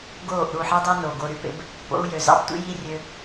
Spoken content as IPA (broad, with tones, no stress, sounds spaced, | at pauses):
ɡ oː˦˨ ʔ ɾ u˦˨ ħ i˦ dˤ e˦ n o˨ ɡ o˧ ɾ y˦ p ḛ˦ b | p o̰˦ u̯ j ø˨ z ɑ̰˦ b tʷ ḭ˦ j i˦ rʲ ø˧